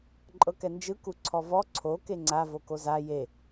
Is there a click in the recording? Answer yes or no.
yes